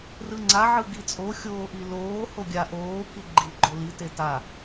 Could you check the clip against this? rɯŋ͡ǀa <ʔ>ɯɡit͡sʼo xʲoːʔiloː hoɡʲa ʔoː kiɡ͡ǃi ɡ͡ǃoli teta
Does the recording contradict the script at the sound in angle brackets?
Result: yes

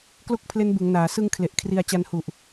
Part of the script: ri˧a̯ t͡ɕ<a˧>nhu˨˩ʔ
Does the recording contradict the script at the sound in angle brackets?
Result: no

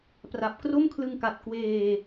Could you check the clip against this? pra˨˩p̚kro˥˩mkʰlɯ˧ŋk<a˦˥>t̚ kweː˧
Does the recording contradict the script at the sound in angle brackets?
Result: yes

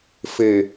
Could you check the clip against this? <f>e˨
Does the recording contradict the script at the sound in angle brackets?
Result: no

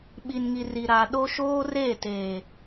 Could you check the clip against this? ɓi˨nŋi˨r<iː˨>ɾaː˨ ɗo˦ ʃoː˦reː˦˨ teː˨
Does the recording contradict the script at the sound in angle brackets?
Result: yes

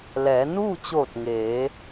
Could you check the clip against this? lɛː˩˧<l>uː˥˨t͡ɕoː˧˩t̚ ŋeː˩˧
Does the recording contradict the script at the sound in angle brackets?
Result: yes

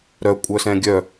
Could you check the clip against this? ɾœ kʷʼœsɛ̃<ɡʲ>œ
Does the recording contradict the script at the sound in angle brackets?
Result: no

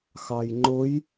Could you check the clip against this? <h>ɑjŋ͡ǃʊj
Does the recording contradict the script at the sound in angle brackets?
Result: yes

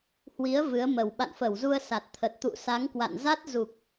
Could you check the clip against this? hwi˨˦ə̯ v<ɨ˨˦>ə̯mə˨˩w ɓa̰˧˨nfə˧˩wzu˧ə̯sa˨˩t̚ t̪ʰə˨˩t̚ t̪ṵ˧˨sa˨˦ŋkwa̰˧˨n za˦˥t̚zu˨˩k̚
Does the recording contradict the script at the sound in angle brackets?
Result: no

